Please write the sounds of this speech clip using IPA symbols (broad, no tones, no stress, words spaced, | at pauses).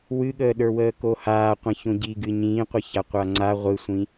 wɨɠəːɗə˞ wəːkohaːqʷĩ çõɟiɡɨ ɲĩːqʷɛça qʷaŋ͡ǀa ʁʷɨsʷĩ